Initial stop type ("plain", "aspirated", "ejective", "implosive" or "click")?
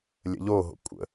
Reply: ejective